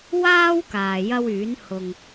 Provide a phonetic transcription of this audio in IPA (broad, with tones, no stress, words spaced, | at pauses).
waː˥w kaː˨jɐ˥wyː˨˥n hʊ˨ŋ